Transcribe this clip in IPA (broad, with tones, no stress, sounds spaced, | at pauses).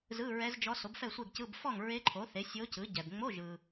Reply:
z ɯ˧˥˧ ɹ ɛ˧˥ z d͡ʒ ɔ˧˥ s o˩˥ b f ɛ˥˨ sʷ e˥˨ ɡ c ɯ˧˥˧ b f ɔ˥˨ ŋ ɹ e˧˥ ǃʰ o˩˥ θ e˩˥ sʲ o˧˥ c ɯ˩˥ ɟ ɛ˨ b ŋ͡m o˧˥˧ ʒ ɯ˨